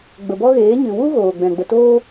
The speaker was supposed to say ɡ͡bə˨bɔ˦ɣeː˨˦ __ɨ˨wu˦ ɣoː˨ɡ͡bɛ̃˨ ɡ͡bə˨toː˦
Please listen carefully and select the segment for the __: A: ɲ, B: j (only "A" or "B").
A